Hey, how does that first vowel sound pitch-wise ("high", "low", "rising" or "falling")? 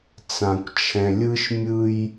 low